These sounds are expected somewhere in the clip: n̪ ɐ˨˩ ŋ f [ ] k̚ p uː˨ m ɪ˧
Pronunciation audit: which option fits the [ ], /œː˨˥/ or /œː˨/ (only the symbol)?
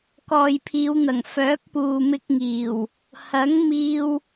œː˨˥